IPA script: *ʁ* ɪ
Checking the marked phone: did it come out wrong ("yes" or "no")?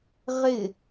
no